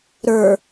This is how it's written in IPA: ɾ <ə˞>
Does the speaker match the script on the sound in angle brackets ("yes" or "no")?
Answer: yes